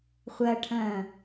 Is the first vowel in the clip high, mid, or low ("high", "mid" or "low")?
low